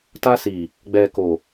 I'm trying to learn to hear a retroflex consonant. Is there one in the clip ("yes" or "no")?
no